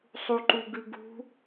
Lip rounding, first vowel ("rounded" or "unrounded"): rounded